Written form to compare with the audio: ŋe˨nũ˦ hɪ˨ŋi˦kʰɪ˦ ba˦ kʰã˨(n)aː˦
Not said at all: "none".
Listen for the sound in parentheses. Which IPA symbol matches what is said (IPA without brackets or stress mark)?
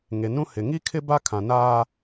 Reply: n